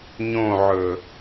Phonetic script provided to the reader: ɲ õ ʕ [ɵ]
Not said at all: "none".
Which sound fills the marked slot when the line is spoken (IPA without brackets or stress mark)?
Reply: ɵ